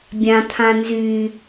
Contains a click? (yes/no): no